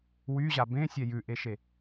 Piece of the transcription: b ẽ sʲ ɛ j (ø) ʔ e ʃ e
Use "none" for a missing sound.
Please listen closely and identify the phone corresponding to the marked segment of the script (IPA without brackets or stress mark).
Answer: ʉ